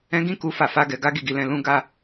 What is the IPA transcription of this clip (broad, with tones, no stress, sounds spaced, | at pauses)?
ɛ̃˦ ɡ ĩ˦ k u˧ f a˧ f a˦ ɡ ɛ˧ ɡ a˦ ɡ i˦˨ ɡ i˧ l ɛ̃˧ l ũ˦ ɡ a˦˨